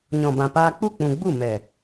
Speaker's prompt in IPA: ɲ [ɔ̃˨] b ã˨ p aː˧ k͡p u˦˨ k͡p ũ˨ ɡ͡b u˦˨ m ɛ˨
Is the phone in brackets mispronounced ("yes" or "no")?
no